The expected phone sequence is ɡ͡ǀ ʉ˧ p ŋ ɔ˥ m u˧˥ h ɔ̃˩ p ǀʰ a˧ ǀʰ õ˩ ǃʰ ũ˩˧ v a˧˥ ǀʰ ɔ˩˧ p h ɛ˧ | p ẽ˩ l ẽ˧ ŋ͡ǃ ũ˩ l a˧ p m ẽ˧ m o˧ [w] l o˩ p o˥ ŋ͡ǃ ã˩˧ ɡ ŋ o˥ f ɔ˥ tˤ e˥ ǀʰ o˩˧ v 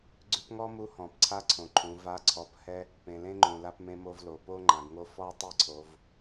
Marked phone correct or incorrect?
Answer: incorrect: v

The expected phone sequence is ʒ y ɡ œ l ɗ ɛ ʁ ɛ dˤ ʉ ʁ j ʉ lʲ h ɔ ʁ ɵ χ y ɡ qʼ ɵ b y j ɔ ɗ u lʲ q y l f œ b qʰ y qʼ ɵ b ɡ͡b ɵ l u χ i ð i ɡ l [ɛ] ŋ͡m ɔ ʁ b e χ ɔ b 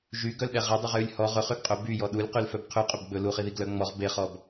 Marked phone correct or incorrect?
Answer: incorrect: œ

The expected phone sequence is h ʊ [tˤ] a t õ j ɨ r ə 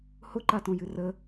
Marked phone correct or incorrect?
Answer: incorrect: ǃ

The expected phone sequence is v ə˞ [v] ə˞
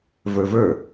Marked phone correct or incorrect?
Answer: correct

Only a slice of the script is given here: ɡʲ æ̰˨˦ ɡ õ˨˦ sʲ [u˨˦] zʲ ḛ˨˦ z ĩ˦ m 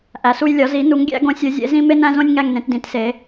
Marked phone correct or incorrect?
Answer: correct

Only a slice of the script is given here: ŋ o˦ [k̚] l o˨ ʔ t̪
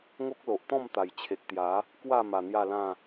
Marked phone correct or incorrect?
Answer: correct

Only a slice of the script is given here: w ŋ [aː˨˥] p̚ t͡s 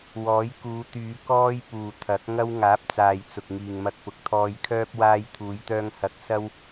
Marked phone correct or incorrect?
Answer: correct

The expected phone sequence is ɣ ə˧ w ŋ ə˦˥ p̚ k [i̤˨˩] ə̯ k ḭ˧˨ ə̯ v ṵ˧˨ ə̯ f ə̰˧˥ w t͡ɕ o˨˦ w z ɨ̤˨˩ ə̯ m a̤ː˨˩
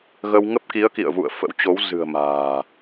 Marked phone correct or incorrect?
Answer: incorrect: i˨˦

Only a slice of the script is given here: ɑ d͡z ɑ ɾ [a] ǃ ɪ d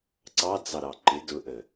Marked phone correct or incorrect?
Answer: incorrect: ɑ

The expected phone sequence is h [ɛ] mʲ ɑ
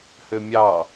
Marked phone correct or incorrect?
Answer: incorrect: ø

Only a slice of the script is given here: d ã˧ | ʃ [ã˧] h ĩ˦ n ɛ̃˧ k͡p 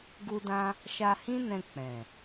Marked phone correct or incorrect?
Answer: incorrect: a˧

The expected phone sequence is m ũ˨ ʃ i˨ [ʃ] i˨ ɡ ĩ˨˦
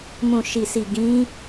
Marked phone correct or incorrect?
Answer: incorrect: s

